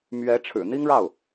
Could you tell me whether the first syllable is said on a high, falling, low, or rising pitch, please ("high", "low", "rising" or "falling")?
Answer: rising